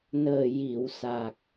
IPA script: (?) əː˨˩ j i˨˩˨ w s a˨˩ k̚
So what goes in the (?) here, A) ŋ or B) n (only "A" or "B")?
B